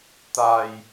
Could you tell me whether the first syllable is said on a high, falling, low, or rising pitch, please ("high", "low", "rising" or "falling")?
low